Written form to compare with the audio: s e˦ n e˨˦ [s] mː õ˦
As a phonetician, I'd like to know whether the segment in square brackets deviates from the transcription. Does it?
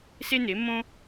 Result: yes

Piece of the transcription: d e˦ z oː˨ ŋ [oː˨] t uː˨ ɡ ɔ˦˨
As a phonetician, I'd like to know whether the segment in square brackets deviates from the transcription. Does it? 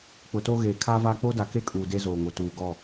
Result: yes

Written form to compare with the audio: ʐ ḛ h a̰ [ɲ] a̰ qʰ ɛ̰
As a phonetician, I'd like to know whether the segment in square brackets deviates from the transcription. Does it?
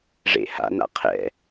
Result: yes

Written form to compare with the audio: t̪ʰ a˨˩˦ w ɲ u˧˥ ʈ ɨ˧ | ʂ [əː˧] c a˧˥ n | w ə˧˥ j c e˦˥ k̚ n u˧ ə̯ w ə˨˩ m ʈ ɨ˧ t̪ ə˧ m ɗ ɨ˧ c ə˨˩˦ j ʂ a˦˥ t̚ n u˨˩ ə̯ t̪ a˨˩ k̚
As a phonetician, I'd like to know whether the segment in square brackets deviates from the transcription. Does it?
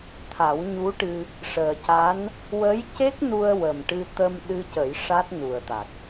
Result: yes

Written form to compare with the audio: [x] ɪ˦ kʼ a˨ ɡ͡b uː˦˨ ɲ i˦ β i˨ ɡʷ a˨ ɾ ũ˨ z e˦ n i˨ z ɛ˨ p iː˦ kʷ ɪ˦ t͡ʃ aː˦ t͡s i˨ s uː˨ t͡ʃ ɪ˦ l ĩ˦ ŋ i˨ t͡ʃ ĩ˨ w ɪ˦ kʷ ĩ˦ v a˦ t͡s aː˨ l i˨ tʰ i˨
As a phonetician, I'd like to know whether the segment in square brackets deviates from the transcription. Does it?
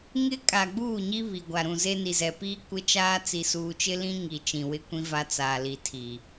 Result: yes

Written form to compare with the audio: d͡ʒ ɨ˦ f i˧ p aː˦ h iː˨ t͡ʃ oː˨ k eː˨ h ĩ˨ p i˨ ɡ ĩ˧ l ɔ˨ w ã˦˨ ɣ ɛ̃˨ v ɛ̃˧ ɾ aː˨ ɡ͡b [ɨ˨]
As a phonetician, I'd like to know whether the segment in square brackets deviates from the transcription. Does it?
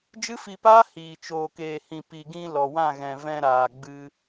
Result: yes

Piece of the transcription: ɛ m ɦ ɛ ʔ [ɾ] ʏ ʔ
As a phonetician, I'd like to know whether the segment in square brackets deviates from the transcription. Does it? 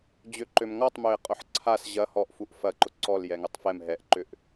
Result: yes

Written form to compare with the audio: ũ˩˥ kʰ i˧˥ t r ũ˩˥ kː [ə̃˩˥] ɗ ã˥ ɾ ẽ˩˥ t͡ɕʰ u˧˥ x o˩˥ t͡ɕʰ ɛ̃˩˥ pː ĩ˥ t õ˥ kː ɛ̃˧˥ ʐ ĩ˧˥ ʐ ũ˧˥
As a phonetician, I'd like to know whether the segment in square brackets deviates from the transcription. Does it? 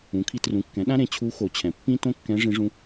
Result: yes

